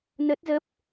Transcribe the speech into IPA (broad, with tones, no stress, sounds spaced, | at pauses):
n ə˦˥ t̚ z ə˦˥ p̚